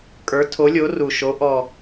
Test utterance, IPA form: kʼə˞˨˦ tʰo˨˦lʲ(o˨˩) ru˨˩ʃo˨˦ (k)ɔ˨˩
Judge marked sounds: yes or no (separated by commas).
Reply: no, no